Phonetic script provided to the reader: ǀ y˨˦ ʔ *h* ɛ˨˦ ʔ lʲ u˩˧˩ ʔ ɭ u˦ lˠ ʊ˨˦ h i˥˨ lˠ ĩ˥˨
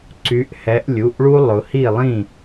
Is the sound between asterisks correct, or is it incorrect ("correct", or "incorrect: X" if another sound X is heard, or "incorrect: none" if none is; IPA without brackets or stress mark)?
correct